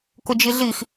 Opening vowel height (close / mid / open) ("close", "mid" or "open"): close